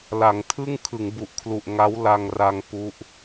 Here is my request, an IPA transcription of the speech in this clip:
la˩˦ŋtʰɯ˥˩ŋ kʰɯ˩˦ŋbu˨˩ʔkʰlu˨˩ʔ ŋa˦˥w la˧ŋra˧ŋ pu˦˥ʔ

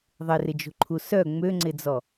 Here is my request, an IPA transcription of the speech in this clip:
ðˤɪrɪd͡ʒo̤ǃʰu sœ ŋ͡møŋ͡ǀɪd͡zɔ

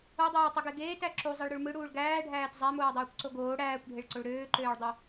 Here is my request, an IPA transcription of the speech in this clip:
odˤøːtˤuɡe ɡeːtæ ǁuzˤiɭɾyɭ mɯɽuːɭ ɡæːɖʱæːt zˤæmoːdˤuːkʷǀo ɡoː ɽæːkʷɖʱeɭǀoɭ ɾøːǃøːɭdˤø

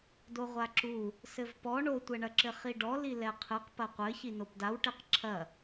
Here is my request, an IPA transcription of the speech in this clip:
doʁʷaǁu | sɘvpɔ ɳotʷɛɳɐǁɘ χiɖɔli lɛqʰɨq pɐqʷɘ çinopdawʈeq ǁʰɐ

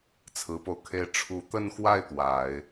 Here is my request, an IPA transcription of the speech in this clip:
t͡sʰɹ̩˧˥po˧ʊ̯kʰe˥ɪ̯ ʈ͡ʂʰu˧˥t̪ə˥˧nxwa˥˩ɪ̯ t̪wa˨˩˦ɪ̯

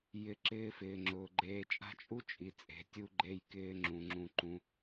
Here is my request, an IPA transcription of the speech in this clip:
jɪ˩˧ǁɪː˧fɪː˩ ŋ͡ǁʊː˩ɡ͡ǃeː˩˧t͡ʃʼa̤˧ t͡ʃʼu˥t͡ʃʼi˩˧ t͡sʼe̤˩˧tʲu˧ɡ͡ǃe˧jkɪː˧ ŋ͡ǁũ˩˧ŋ͡ǁũ˧ǃũ˧˥

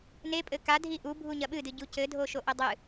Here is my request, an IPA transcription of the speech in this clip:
nepʼɘ kadʱi ʔubʱu ɲɐɓɨdɨ ɟucɘdʱoʃo ʔɘdˤɨ

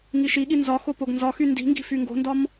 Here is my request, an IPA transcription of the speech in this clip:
ŋiʃiɠi nzɒxo poɡnzɒxy ndi̤ŋɡi̤ fyŋɡo̤ndɒm

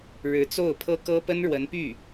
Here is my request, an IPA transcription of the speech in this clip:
ɻɻ̩˧˥t͡so˥˩ʊ̯pʰɤ˥ kɤ˥pə˥nɻwə˧˥npy˥˩

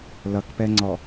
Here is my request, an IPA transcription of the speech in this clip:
lʌkpɛŋ͡ǀɔ

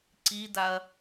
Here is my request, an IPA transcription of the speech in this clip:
ǀidaɐ̯

